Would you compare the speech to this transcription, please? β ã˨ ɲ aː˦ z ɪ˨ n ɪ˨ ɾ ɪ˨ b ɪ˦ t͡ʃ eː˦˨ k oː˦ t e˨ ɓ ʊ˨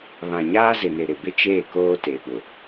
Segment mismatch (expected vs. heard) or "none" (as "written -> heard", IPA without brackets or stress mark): none